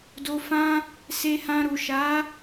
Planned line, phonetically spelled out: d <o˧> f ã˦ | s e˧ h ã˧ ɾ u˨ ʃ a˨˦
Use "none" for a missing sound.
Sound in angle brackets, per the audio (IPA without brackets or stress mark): o˧